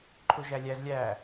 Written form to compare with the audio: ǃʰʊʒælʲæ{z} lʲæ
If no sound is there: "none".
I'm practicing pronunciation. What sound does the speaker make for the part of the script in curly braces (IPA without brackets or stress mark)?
z